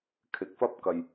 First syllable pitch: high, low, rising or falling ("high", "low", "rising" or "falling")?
rising